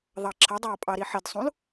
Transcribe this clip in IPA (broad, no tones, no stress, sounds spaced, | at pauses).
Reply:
ðˤ ɑ ǁʰ ə dˤ æ ɐ̯ pʼ ɑ ɾ i ħ ɪ d sˤ ũ l